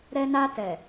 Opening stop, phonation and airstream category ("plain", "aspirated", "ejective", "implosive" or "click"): plain